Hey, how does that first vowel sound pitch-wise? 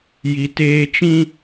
high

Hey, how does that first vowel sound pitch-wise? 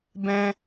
high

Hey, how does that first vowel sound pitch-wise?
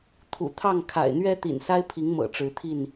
low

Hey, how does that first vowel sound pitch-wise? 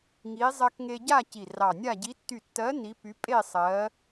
rising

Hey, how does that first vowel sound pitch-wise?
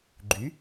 rising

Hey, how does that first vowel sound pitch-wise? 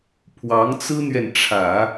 rising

